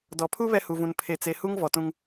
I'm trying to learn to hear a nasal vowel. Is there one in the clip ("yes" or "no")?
yes